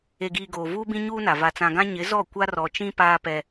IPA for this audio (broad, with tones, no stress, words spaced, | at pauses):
e˨ɡiː˨ ɡoː˨vuː˦bĩ˦ ɲuː˦na˨ va˨t͡sã˨ɡã˦ ɲɪ˨˦zɔ˦˨ kʷa˦rɔ˨t͡ʃĩ˦ paː˦pɛ˦